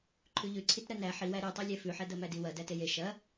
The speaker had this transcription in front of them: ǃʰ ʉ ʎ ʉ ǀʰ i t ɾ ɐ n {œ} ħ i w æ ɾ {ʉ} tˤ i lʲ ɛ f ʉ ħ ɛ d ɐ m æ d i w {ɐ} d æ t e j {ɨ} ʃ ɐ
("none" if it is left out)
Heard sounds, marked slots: æ, ʉ, ɐ, e

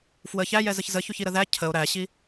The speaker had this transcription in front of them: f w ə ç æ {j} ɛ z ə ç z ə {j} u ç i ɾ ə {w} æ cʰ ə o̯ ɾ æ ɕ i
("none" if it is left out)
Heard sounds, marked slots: j, ç, ð

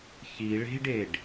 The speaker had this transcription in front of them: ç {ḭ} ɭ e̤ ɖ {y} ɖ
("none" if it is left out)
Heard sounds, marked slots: i, e

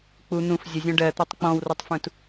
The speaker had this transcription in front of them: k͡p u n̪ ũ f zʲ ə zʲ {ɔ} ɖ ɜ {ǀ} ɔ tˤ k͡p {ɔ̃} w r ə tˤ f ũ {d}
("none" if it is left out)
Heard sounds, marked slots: ɔ̃, t̪, ɔ̃, t

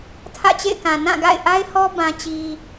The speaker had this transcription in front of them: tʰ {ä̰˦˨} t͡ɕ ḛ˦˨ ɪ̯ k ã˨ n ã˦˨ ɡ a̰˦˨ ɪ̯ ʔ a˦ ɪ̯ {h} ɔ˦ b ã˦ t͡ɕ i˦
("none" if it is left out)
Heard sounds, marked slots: ä̰˦˨, h

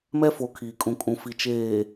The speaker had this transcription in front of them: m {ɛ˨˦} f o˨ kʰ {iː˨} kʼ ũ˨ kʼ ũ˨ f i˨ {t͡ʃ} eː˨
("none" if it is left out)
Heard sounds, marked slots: ɛ˦, iː˨, t͡ʃ

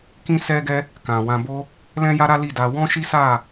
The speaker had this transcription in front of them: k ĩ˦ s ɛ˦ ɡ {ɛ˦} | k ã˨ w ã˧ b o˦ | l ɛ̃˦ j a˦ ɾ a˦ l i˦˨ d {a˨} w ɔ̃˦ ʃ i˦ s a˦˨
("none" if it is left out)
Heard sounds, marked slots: ɛ˦, a˧

